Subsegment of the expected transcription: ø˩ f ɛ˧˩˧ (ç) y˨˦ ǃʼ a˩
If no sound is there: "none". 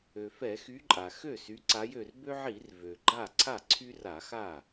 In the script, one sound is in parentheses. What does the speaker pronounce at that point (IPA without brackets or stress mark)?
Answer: x